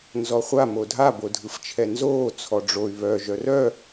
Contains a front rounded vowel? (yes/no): yes